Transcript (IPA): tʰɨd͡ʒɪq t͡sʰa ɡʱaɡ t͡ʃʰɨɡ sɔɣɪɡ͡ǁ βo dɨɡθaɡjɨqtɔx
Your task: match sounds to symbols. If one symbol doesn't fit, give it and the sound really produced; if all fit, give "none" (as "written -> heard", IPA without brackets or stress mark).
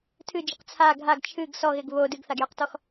ɡ͡ǁ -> ɡ